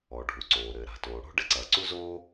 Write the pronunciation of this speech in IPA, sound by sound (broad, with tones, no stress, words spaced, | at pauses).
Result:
ɔ˩ ɖʱu˩ǀoː˩ɾɘː˩ ɾa̤˩toː˩ɽo̤˥ ɖɘ˥ǀɐː˩ǀu˥zoː˥